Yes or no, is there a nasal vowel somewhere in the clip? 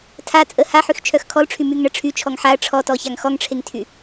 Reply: no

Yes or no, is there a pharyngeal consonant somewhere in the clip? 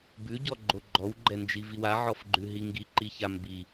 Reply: yes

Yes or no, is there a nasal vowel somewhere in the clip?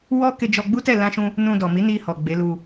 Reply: yes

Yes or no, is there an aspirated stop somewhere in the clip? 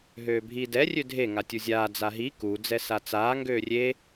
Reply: no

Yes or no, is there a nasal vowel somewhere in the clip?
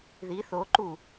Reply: no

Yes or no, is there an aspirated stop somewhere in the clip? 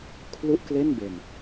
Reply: yes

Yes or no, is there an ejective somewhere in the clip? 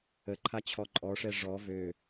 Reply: yes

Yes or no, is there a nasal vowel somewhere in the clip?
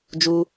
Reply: no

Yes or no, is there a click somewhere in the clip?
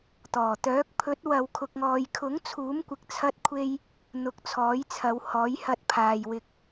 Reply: no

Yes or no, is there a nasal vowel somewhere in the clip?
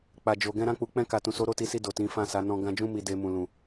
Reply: yes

